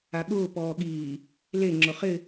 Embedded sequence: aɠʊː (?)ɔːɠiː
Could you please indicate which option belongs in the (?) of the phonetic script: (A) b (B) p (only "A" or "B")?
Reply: B